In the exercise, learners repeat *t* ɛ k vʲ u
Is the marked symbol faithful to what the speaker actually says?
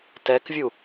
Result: yes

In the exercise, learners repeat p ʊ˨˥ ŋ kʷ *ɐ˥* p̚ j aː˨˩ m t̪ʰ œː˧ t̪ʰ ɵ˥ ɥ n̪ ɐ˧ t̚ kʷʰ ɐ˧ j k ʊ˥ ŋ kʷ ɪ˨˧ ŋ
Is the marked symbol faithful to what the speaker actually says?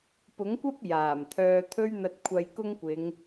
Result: yes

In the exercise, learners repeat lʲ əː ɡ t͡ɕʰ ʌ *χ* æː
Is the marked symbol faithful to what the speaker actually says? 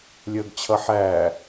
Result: no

